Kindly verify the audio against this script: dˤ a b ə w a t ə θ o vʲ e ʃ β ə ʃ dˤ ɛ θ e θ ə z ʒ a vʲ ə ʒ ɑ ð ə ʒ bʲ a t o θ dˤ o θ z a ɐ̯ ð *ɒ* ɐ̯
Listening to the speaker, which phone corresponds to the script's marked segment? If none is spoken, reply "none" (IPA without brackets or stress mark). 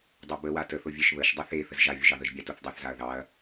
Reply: ɑ